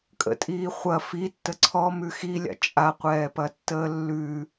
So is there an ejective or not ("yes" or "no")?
yes